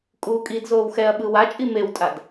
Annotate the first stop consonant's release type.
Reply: ejective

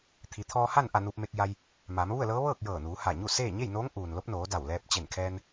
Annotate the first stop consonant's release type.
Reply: aspirated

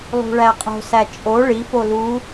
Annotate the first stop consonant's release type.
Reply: ejective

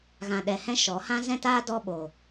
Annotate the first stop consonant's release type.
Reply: implosive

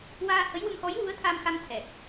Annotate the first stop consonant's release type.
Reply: aspirated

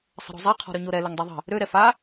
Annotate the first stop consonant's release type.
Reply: aspirated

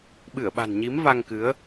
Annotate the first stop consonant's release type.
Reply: implosive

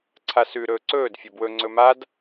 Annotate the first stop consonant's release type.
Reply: click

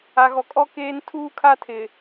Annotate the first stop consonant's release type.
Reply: ejective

